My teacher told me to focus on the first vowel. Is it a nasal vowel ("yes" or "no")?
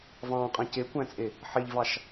yes